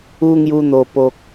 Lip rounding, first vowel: rounded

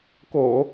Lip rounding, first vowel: rounded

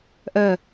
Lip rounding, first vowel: rounded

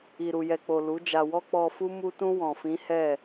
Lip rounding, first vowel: unrounded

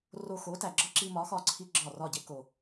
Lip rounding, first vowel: rounded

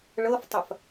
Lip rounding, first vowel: unrounded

